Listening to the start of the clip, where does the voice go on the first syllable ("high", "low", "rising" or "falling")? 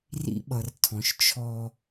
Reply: high